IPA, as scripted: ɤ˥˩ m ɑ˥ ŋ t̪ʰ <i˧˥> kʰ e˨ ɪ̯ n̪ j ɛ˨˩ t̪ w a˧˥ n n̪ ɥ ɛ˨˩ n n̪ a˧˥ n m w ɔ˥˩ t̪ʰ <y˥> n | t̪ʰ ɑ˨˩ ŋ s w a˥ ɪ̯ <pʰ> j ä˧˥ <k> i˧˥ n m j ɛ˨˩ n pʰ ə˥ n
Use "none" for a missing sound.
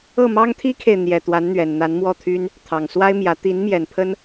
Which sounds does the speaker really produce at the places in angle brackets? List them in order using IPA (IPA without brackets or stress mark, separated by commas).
i˥, y˥, m, t̪